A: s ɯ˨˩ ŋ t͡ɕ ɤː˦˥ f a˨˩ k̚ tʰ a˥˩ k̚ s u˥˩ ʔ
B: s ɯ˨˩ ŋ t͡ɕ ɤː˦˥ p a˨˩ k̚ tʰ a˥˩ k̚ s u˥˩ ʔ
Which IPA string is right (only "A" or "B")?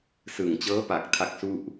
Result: B